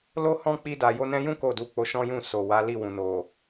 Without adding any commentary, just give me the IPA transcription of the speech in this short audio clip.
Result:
l o˦ h ɔ̃˦ k͡p i˧ d a˨ j o˧ n ɛ̃˧ j ũ˦ k o˦˨ d u˧ k͡p o˧ ʃ ɔ̃˦ j ũ˦˨ s o˨ w a˨˦ l i˦˨ w ũ˨ n o˨

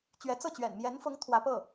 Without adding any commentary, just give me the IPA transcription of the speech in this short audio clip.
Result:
t͡ɕ ɥ ɛ˧˥ t͡s ɤ˥˩ t͡ɕ ɥ ɛ̰˨˩ n m j ɛ˧˥ n f ʊ˧˥ ŋ t̪ʰ w ä˧˥ p ɤ˥˩

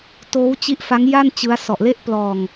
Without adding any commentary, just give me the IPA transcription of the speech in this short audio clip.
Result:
t oː˦˥ w t͡ɕ i˦˥ ʔ f a˦˥ ŋ j a˥˩ n t͡ɕ ɯ˦˥ a̯ s ɔ˨˩ ʔ l e˥˩ ʔ p l ɔː˧ ŋ

